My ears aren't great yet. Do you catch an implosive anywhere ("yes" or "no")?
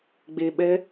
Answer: yes